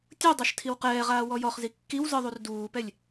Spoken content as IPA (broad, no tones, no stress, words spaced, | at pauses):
tʲu dˤaʃtʰiwqɛːʁaː wɔjɔχzi kːiw zɯðˤur duːpɛlʲ